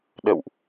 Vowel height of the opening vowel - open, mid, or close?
mid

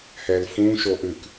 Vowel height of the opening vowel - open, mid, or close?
mid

